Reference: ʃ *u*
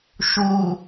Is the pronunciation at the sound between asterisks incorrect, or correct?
correct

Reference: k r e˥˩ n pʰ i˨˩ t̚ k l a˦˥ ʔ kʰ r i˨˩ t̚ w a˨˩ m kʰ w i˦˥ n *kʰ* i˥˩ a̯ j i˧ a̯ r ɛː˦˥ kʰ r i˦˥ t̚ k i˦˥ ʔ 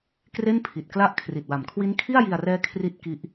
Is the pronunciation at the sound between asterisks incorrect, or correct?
correct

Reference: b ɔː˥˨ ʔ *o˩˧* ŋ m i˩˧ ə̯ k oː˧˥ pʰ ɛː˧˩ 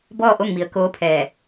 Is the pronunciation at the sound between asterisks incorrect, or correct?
incorrect: o˥˨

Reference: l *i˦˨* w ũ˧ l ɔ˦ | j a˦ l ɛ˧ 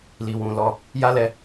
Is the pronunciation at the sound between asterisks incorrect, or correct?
incorrect: i˧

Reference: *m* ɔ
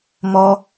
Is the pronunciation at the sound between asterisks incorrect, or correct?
correct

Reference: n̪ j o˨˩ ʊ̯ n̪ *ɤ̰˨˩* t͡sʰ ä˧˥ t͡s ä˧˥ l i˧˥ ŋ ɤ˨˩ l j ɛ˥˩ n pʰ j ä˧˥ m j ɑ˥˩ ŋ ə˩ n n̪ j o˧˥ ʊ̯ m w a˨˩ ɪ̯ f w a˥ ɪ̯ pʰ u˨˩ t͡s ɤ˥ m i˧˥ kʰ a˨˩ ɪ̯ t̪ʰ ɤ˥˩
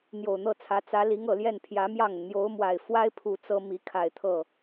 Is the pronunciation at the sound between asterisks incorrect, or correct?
incorrect: ɤ˥˩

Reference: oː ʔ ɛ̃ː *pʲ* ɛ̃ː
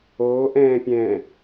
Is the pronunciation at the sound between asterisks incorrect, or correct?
correct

